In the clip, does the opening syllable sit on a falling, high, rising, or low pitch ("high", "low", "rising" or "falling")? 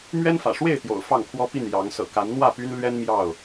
high